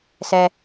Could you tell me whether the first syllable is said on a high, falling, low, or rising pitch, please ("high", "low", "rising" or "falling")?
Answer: low